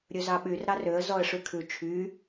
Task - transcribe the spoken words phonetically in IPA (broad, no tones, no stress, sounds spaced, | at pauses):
ɾʲ ɵ z ɑ ɓ y r ɾ ɑ r ø ə̯ z ɔ ə̯ ʂ ʉ kʰ ʉ t͡ʃʰ y